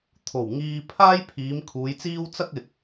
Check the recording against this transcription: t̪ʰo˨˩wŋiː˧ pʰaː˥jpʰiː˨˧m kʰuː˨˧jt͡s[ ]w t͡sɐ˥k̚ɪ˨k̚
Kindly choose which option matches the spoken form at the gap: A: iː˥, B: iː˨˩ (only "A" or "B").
A